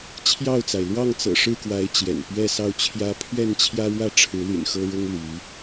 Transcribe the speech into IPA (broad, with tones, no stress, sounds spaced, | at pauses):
t͡ɕʰ j ɑ˥˨ ʊ̯ t͡s a˩ ɪ̯ l w ɑ˥˨ ŋ t͡s ɤ̰˨˩ ʂ ɻ̩˥˨ k w a˨˦ ɪ̯ t͡ɕ j ɛ̰˨˩ n p ɥ ɛ˥˨ s ɑ˥˨ ʊ̯ t͡ɕʰ j ä˦ pʰ ɥ ɛ˥˨ n t͡ɕʰ j ä˦ ɻ w ä˥˨ ʈ͡ʂʰ ɻ̩˨˦ l y̰˨˩ n x ɤ˦ ɻ ʊ˦ ŋ l y˨˦